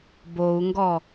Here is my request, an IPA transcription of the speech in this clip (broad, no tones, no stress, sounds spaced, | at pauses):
b o u̯ ŋ ɡ ɔ